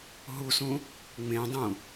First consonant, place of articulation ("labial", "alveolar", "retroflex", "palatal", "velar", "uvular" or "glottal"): glottal